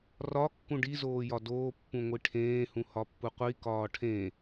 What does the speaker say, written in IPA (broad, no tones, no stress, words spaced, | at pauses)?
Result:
rɒ kːũɖi zoːjɒdoː pːũŋʷiʈʰẽː hũhɒpːuqʷi kɒːʈʰẽ